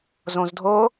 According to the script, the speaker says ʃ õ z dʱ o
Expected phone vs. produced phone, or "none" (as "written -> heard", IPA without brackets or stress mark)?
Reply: ʃ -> z